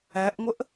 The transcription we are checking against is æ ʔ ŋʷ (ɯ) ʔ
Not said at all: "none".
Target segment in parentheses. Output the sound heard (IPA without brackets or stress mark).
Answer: ə